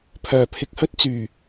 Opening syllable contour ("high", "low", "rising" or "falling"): low